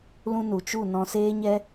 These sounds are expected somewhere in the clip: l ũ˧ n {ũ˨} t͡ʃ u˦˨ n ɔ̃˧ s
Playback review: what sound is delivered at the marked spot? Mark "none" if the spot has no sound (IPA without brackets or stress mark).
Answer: u˨